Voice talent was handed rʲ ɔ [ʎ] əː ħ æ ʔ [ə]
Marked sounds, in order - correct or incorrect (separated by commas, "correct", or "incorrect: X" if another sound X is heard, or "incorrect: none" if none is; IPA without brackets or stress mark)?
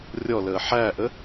incorrect: l, correct